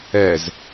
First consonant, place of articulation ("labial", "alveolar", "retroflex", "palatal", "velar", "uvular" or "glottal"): alveolar